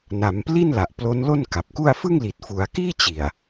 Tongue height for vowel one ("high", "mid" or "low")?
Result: low